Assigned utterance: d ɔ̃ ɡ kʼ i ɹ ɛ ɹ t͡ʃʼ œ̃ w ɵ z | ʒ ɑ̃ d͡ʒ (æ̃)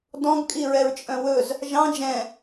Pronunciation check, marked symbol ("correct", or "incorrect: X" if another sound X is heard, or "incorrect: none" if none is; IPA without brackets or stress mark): incorrect: ɛ̃